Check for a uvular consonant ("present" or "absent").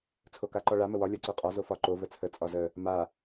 present